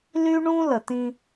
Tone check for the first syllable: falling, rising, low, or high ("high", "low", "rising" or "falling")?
high